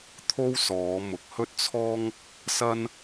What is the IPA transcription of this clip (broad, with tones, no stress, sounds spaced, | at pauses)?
t̪ʰ o˥ w s ɔː˨˧ m ʊ˨ k̚ h ɵ˥ t̚ t͡sʰ ɔː˥ ŋ | s ɐ˥ n